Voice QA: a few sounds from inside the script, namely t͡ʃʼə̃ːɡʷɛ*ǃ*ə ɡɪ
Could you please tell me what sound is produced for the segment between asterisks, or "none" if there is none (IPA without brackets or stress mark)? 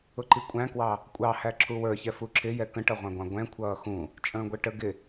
ʈ